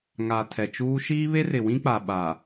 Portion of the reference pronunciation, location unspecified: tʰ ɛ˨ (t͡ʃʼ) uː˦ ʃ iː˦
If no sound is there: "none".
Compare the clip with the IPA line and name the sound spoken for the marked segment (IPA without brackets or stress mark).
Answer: t͡ʃ